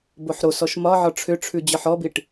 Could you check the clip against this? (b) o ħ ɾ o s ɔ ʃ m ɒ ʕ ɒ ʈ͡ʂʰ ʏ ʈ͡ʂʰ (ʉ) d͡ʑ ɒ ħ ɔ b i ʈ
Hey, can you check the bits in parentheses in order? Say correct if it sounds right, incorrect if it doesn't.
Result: correct, correct

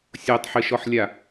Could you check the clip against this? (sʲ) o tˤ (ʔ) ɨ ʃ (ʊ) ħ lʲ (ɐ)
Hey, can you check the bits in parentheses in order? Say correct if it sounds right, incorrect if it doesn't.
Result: correct, incorrect: ħ, incorrect: ɔ, incorrect: a

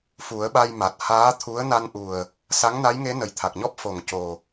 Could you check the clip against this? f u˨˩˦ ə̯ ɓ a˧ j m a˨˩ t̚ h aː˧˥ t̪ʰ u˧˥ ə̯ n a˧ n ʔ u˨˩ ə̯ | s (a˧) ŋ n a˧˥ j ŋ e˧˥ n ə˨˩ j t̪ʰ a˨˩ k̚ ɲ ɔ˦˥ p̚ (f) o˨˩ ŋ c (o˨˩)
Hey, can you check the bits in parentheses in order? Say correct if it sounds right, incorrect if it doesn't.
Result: incorrect: a˧˥, correct, correct

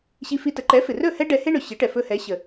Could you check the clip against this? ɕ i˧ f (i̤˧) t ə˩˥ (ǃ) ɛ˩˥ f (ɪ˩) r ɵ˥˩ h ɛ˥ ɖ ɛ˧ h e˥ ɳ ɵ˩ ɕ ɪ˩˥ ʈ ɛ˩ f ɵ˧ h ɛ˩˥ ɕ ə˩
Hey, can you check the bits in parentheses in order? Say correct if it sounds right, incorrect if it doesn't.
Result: incorrect: i˧, correct, correct

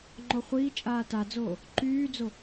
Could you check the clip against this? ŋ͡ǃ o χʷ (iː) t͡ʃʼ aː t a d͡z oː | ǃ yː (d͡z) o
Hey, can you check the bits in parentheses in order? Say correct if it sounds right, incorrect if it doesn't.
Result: correct, correct

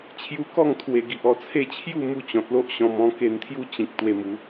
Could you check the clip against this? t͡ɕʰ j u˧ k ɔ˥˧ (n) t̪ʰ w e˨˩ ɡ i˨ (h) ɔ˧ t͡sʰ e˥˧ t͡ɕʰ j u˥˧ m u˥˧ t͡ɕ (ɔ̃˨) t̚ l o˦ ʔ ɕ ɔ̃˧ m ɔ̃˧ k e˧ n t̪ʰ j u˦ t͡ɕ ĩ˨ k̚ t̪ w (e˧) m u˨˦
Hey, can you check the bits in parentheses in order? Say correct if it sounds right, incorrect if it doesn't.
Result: incorrect: ŋ, incorrect: ʔ, correct, correct

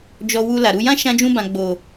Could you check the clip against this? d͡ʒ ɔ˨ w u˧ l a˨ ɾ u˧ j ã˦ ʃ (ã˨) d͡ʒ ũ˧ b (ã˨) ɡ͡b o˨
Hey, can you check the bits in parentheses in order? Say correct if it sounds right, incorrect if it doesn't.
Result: incorrect: ã˧, correct

